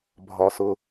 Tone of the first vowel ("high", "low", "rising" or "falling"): low